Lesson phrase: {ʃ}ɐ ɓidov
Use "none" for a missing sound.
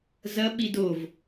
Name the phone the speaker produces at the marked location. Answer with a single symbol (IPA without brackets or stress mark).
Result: z